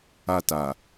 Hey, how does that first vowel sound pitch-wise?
high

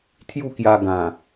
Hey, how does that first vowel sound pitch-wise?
falling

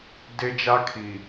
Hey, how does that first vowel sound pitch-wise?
high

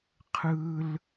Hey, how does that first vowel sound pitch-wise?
high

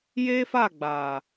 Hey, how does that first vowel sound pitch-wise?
high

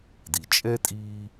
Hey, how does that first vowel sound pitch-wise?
low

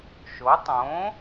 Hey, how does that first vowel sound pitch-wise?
rising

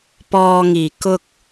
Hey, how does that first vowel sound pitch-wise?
low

